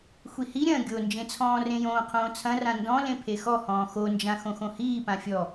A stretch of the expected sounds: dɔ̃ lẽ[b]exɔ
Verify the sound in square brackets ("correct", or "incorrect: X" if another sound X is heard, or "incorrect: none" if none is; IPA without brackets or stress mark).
incorrect: pʰ